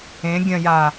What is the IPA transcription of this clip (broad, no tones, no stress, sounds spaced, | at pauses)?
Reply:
ẽ ɡʲ ɐ̃ j a